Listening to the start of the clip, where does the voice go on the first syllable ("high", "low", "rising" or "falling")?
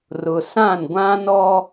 low